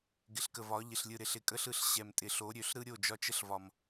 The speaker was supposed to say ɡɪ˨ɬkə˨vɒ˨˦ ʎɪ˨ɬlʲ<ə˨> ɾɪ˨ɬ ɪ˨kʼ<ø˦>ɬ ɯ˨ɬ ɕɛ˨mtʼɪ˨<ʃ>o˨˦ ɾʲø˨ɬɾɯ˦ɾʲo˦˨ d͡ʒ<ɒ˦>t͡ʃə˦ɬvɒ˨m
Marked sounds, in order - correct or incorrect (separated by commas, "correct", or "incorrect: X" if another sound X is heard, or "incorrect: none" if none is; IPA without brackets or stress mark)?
incorrect: ɯ˨, incorrect: ə˦, incorrect: ɬ, correct